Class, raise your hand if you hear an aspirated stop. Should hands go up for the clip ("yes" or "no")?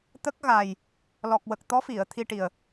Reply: yes